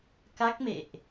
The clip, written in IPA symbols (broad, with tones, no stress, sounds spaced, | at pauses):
k a˦˥ k̚ m ḛ˧˨ ʔ